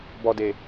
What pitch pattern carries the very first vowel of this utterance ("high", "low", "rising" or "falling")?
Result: low